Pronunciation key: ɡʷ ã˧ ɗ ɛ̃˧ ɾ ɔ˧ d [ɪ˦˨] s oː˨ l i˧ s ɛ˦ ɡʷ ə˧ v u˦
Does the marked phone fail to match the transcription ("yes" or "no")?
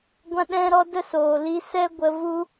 yes